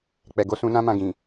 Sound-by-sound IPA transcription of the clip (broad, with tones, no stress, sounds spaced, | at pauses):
k͡p ɛ˨ ɡ o˧ s ũ˧ n ã˦ m ã˧ ɡ ĩ˨